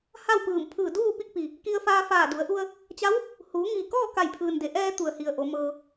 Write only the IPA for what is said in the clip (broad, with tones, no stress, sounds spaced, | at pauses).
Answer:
h a˥˨ w p ɯː˧˩ m pʰ ɯː˧˩ d uː˥˨ p i˥˨ k̚ p i˩ | k i˧ ə̯ f aː˧ f aː˧˩ d u˩˧ ə̯ ʔ u˧ ə̯ | t͡ɕ a˧˥ w | h uː˩˧ ŋ iː˩ k ɔː˥˨ k a˧˩ j pʰ ɯː˩ n d e˩˧ ʔ ɛː˧ t̪ u˩ ə̯ h i˩ ə̯ ʔ o˩˧ m ɤː˧